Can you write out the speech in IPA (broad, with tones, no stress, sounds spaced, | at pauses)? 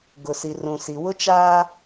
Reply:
ɡ ʊ˨ s i˨ r ũ˨ s i˨ w ʊ˦ t͡ʃ aː˦